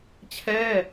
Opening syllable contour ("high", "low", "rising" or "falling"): falling